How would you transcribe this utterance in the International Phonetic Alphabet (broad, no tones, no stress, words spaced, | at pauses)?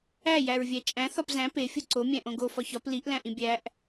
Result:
æ jæɹvʲæt͡ʃʼæ̃ θɒpzæ̃ pe fʲuǀo mʲæ̃ʔõɡo fɒçɒp liʔ læ̃ʔĩbʲæʔ